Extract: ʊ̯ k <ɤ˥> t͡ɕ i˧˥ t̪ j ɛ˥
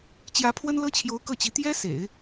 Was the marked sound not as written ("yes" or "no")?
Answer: yes